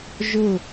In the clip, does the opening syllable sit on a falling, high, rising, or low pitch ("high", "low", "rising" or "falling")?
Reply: falling